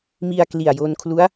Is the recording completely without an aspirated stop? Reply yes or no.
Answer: no